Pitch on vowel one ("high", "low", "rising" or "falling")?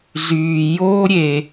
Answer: low